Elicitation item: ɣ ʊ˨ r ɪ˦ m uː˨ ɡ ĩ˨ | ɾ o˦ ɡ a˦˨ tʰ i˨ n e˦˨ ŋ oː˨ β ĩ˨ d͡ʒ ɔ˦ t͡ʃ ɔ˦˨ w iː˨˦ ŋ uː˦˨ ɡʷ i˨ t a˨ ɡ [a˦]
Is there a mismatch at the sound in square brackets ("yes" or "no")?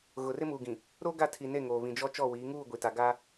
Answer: no